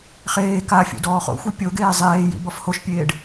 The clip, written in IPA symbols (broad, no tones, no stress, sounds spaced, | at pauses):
χ eː k a fʲ ṵ d ɔː χ o̰ xʷ e pʲ o ɡ eː zˤ eː j ḭ b ɔ f h o ʃ pʲ eː ɖ